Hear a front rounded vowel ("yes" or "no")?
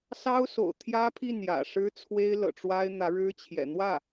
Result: no